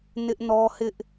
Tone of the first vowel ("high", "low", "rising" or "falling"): high